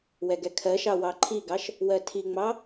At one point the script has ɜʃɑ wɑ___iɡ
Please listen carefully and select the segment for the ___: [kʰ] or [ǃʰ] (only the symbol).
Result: ǃʰ